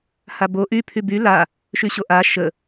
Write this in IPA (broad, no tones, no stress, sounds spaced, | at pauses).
h a b o ʔ y pʰ y b y l a | ʃ y ɕ o ʔ a ʃ ə